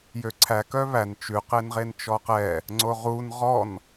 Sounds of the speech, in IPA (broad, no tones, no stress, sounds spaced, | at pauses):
j ø ǀʰ æ k œ β æ n t͡ʃ ʉ q e n ʁ e n t͡ʃ ɔ q ɛ | ŋ͡ǀ o ʁ u n ʁ ɔ n